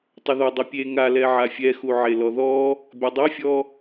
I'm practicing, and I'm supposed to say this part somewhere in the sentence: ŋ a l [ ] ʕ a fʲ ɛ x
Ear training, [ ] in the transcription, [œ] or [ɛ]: ɛ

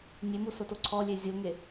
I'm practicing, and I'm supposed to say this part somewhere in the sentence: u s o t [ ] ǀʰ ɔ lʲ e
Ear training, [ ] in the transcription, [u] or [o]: o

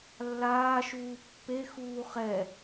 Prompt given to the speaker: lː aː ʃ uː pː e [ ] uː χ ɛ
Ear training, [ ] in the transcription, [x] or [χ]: x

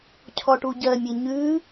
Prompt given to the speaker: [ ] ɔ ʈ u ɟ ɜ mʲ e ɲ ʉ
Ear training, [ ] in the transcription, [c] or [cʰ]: cʰ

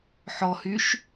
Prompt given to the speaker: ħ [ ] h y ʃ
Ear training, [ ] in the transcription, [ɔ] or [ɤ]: ɔ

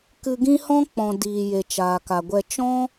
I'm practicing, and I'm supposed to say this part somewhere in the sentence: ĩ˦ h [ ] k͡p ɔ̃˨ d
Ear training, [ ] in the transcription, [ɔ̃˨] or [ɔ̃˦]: ɔ̃˦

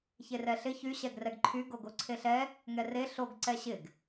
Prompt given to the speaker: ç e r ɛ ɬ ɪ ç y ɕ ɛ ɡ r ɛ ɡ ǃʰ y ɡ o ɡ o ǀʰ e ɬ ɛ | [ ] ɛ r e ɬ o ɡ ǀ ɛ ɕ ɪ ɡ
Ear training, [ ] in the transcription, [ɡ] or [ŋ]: ŋ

